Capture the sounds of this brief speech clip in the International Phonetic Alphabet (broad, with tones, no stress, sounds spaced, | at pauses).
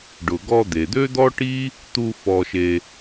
ɖ ʊ˩ ɡ ɔ˧ d̪ e˩ d̪ ø˥ d̪ ɔ˥ ʈ i˥ | t̪ u˧ f ɔ˧ ʃ e˧